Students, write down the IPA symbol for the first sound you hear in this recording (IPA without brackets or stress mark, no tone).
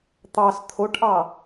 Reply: t̪